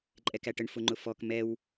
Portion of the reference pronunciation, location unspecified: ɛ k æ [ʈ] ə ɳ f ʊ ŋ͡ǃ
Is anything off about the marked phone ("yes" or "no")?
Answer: no